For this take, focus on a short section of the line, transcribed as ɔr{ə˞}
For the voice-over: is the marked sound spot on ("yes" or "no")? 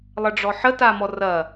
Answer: no